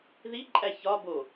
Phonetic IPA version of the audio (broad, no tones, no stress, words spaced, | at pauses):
ðiǃʼæ çɒbo